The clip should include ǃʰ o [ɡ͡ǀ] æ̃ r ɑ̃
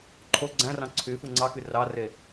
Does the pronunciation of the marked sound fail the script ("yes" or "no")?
no